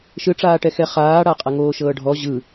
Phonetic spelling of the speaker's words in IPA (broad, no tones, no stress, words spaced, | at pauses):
ʃɯʈ͡ʂaːʈɛ xɛχaːɽa qʼaŋoːʃɤːɖʱɔ ʑɯ